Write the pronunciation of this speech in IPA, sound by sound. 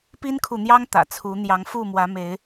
p i˦ n kʰ u˨ n̪ j ɑ˦ ŋ t̪ ä̰˨˩ t͡sʰ u˨˦ n̪ j ɑ˨˦ ŋ f u˥˨ m w ä˨˦ m e˨˦ ɪ̯

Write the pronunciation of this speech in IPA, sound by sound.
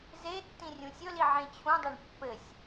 z e tː ĩ rʲ ũ sʲ ɵ l i ʕ ẽ t͡ɕʰ ũ dˤ ɘ ɳ pː ɘ sʲ

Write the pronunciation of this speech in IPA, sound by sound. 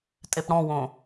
tʼ e p ɽ ɔ̃ w õ

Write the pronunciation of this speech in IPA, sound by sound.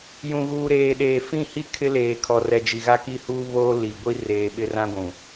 j ũ˨ ɣ uː˨ ɾ eː˨ ɗ eː˨ f ĩ˦˨ h i˦ kʰ ɪ˦ l eː˨ kʰ ɔ˨ r ɛ˨ d͡ʒ i˨ ɣ a˦ k i˦ h uː˦ β oː˦ l i˨ ɡʷ i˦ r eː˨ ɓ ɪ˦ r ã˦ ɡʷ ũ˨

